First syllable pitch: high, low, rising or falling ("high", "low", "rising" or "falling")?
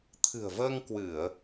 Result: low